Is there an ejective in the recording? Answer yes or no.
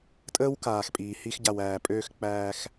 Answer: yes